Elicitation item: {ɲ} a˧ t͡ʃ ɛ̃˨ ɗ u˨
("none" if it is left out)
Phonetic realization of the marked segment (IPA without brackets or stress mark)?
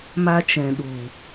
m